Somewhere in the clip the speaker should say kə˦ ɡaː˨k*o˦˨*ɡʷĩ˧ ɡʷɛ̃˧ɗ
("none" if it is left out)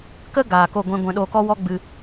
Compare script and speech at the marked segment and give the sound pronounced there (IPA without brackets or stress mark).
o˦˨